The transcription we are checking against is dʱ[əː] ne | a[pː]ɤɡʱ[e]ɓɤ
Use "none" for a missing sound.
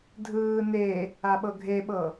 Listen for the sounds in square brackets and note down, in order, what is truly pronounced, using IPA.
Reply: ɯː, ɓ, e

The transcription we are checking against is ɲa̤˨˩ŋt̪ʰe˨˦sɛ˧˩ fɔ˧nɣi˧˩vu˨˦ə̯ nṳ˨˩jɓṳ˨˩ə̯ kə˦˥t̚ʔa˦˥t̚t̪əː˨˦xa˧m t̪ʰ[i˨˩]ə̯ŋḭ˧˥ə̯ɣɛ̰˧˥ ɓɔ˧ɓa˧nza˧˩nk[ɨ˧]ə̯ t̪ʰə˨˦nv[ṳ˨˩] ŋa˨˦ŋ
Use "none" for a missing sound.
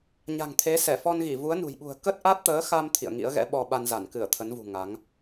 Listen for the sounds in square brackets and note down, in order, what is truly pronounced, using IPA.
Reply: ḭ˧˨, ɨ˧˩, ṳ˨˩

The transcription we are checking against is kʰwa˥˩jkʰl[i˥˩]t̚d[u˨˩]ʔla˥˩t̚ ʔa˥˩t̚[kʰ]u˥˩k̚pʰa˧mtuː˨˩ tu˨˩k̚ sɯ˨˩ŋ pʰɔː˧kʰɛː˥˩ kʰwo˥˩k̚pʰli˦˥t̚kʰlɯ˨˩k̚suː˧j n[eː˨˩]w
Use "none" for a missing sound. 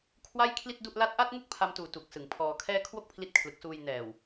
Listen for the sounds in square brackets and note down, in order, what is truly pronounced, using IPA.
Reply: i˥˩, u˥˩, ŋ, ɛː˨˩

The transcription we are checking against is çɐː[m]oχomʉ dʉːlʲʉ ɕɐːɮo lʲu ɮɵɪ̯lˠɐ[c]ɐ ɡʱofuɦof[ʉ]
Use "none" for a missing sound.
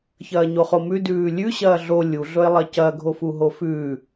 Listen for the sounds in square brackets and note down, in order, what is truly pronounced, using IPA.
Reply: ɲ, c, ʉ

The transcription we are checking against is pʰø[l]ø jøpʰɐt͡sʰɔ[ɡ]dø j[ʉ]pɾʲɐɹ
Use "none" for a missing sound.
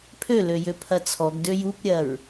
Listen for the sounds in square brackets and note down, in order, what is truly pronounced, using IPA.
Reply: l, ɡ, u

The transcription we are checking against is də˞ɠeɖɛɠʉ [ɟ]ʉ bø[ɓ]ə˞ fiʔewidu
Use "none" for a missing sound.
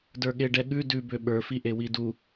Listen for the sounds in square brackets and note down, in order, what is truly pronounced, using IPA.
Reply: d, ɓ

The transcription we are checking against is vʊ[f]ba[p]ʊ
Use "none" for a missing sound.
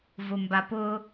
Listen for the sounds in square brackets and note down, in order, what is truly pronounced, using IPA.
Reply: m, p

